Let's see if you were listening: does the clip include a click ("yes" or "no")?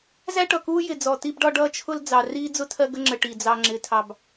yes